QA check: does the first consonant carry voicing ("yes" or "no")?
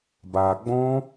yes